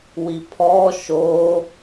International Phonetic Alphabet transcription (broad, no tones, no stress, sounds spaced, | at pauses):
w i pʰ ɔ ʃ o